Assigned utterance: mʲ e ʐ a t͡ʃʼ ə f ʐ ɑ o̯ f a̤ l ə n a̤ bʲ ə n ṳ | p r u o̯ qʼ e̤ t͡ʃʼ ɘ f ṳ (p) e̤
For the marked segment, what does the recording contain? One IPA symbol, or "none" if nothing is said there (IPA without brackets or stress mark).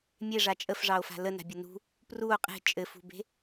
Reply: b